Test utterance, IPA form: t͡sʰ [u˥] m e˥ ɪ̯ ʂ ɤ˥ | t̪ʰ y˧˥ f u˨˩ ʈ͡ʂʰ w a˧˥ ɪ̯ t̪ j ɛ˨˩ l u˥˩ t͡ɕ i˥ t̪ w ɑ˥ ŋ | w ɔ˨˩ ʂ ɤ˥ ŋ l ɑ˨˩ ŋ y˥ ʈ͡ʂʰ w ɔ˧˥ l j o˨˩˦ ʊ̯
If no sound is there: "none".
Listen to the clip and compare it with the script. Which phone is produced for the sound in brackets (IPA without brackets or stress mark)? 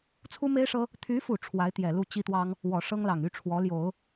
u˥